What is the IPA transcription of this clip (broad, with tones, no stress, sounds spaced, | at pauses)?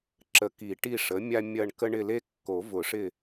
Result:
ǁ ə˨˩˦ k i˨˩˦ ʈ i˦˨ ʂ ə˩˥ mʲ a˦ mʲ ɐ˦˨ ɳ k ə˦ ɳ ɪ˦˨ l e˦ kː o˨˩˦ v ʊ˨˩˦ ʂ ɪ˦˨